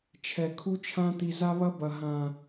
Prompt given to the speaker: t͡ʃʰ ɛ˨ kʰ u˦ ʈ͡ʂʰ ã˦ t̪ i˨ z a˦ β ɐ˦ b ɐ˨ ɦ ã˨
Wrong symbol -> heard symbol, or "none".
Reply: ʈ͡ʂʰ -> t͡ʃʰ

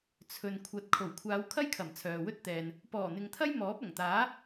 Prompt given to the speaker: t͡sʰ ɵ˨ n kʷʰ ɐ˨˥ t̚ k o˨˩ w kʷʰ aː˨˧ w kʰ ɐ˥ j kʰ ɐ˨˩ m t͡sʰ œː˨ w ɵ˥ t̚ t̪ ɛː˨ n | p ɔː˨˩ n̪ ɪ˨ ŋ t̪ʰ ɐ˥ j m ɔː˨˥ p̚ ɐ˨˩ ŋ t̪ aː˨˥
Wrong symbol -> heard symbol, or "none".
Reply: k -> kʰ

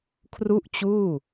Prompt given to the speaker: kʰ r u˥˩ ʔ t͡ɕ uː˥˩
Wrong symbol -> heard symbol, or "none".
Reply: none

